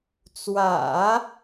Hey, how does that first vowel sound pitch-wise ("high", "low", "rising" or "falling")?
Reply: low